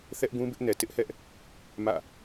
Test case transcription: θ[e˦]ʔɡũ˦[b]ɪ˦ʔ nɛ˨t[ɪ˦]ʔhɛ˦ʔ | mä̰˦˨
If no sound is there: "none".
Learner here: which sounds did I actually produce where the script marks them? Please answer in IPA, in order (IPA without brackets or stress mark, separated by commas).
ɛ˦, b, ɪ˦